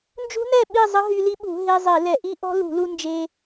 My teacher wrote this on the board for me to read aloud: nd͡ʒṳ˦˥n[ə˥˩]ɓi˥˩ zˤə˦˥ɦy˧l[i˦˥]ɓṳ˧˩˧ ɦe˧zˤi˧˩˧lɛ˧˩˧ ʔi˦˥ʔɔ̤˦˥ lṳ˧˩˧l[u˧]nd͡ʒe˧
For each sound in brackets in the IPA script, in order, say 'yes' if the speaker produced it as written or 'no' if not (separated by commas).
no, yes, yes